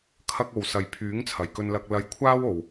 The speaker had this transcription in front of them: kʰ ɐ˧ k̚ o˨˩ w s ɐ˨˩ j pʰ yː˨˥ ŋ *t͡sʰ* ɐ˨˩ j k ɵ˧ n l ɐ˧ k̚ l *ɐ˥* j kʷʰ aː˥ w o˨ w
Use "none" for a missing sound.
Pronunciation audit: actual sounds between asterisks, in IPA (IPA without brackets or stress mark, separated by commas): t͡sʰ, ɐ˧